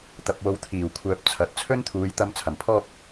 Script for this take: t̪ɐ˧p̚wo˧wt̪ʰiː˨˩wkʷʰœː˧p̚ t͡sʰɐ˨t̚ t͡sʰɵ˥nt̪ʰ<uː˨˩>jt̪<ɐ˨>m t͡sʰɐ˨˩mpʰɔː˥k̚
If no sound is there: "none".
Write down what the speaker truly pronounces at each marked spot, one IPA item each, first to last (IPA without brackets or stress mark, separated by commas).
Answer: uː˨˧, ɐ˧